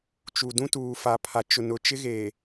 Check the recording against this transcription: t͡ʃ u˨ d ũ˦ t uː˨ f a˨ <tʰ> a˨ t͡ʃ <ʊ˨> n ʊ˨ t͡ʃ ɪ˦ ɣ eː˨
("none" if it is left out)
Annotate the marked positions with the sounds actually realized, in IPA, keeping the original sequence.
pʰ, ʊ˨

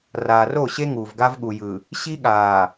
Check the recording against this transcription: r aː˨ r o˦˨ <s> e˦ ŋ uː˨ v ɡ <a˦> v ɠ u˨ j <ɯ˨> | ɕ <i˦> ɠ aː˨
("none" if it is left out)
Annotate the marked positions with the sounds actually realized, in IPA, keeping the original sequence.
ɕ, a˦, ɯ˨, i˦

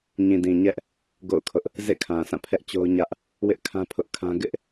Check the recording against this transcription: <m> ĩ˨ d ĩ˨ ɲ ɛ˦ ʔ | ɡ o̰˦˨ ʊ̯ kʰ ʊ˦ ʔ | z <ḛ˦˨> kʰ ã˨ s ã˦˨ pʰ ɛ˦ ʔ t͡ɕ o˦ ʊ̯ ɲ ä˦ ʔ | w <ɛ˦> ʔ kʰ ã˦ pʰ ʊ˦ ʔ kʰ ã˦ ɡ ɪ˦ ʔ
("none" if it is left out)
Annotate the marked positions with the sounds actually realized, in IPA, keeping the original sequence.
ɲ, ḛ˦˨, ɪ˦

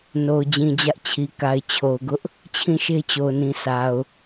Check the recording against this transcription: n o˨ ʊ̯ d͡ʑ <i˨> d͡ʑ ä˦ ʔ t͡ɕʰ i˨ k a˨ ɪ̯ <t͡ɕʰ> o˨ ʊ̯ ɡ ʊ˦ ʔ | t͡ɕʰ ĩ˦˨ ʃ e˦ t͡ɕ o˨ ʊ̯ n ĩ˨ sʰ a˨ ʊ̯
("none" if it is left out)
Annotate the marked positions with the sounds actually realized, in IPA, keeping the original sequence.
ĩ˨, t͡ɕʰ

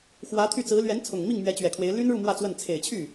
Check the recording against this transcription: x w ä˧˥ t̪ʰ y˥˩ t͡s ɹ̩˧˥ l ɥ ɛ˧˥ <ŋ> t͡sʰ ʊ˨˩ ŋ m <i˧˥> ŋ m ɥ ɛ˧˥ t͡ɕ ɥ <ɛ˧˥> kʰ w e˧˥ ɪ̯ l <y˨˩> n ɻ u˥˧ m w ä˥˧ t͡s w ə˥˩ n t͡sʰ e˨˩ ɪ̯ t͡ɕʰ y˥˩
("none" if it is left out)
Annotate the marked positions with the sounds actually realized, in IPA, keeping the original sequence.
n, i˥˩, ɛ˨˩, y˥

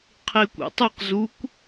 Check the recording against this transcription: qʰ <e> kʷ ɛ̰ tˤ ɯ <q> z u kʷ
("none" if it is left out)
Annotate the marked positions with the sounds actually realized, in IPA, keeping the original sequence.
e, q

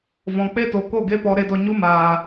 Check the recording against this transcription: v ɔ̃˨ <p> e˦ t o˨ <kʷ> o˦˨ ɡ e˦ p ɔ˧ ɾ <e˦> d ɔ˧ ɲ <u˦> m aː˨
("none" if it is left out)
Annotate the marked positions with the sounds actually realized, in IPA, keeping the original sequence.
k͡p, k, e˦, u˦

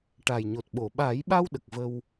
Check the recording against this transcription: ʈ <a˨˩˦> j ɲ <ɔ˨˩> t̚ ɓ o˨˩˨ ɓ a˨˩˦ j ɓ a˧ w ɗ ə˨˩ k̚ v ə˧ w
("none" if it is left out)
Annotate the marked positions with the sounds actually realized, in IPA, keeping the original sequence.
a˨˩, o˨˩

